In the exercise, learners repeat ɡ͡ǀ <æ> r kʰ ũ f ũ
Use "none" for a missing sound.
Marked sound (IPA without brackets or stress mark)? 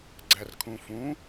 æ